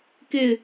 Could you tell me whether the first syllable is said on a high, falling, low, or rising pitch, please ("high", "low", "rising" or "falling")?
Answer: falling